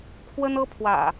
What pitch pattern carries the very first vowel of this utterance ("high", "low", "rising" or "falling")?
high